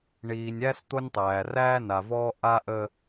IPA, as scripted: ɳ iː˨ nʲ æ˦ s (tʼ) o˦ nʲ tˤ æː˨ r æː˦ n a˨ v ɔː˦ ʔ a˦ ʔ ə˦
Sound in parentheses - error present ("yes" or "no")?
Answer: yes